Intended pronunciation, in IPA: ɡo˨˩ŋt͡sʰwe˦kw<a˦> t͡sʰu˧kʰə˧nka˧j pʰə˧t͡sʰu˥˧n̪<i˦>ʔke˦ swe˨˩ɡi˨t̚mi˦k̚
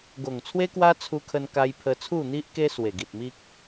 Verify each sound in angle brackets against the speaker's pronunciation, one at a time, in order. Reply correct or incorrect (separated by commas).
correct, correct